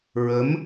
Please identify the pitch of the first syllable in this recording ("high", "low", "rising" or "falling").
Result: rising